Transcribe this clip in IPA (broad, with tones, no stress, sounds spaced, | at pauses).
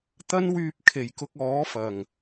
t̪ ɐ˥ n w yː˧ p̚ kʰ e˨˩ j k ʊ˧ k̚ ɔː˨˥ f ɐ˨˩ ŋ